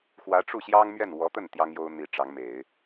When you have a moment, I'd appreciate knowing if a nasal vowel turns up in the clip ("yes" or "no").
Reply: no